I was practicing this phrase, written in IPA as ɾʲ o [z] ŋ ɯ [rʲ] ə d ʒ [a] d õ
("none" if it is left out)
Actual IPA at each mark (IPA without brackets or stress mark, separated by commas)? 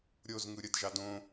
z, ɾʲ, ɑ